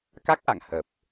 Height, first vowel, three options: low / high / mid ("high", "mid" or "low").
low